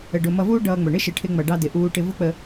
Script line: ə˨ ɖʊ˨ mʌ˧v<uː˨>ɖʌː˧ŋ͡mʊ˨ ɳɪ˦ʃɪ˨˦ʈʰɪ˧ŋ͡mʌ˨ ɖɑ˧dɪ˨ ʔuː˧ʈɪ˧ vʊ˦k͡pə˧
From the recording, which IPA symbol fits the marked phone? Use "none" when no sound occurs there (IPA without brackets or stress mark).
uː˦